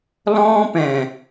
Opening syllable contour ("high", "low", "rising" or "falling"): high